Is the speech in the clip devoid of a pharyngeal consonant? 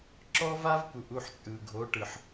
no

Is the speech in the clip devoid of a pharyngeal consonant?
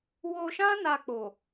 yes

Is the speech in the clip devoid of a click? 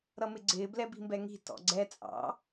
no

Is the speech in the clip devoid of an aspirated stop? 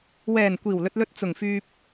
yes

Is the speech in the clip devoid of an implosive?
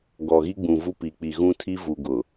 yes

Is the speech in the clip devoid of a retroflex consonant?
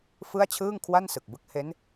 yes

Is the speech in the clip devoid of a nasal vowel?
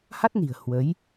yes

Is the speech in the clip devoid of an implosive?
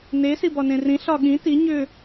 no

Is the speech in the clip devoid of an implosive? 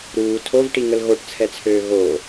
yes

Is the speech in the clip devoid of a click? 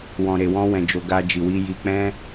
yes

